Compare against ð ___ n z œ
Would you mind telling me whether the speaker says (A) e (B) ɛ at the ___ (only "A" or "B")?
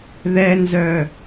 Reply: B